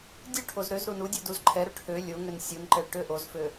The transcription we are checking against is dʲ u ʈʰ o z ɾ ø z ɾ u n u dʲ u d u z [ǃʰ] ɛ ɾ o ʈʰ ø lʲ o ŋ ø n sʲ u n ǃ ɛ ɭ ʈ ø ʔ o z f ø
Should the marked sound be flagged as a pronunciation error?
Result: no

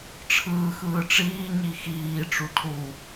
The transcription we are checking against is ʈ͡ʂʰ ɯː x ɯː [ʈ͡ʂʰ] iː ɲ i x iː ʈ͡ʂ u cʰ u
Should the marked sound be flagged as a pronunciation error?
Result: yes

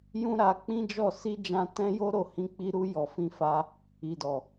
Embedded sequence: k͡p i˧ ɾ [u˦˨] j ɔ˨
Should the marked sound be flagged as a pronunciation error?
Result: yes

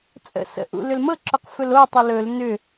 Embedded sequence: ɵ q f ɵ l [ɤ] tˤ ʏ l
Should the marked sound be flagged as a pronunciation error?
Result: yes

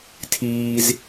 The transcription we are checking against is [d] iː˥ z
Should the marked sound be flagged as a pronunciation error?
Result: yes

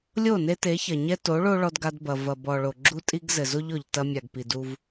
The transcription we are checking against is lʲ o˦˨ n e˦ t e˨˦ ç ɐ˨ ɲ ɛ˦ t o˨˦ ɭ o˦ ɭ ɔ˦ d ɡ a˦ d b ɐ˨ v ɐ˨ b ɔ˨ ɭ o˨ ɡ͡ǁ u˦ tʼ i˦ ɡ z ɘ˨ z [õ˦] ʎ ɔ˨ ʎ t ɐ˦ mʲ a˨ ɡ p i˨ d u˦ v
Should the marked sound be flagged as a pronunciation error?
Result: yes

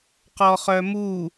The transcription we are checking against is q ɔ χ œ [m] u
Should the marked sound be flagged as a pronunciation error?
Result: no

